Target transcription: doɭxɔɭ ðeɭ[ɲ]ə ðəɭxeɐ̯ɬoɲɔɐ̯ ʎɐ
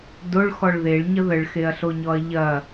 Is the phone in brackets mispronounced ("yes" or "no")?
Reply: no